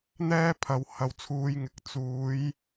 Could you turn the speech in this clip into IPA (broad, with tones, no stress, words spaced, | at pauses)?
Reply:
n̪ɛː˥pʰɐ˨˧w hɐ˨w t͡sʰuː˨˧jŋɪ˨k̚ t͡suː˨˧j